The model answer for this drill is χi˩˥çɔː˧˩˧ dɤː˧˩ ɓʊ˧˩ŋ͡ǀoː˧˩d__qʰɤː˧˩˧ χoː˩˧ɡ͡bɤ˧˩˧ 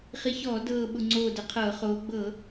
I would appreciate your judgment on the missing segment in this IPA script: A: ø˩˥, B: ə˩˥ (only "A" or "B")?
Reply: B